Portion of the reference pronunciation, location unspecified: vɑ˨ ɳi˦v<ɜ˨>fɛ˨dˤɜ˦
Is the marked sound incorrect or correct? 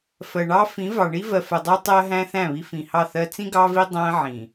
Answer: correct